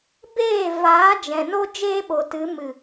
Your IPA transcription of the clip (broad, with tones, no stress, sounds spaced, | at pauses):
b eː˦˨ v aː˨˦ d͡ʒ ɛ̃˨ n o˦ d͡ʒ eː˦ ɓ o˨ t ɨ˨˦ m ɨ˨